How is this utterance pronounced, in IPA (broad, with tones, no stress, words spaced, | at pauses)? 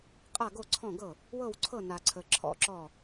qʼa˥˩ɡo˥˩ǀʰɔ̃˥˩ɡɤ˥˩ | wɤ˥˩wǀʰɤ˥˩na˨ǀʰə˨ ǁʰɔ̰˥˩ǁɔ˥˩